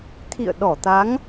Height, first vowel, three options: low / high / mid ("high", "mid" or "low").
high